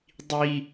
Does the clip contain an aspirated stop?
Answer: no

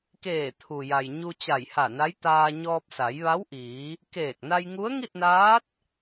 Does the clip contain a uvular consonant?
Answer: no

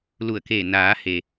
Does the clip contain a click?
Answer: no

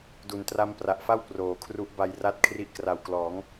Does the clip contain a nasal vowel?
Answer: no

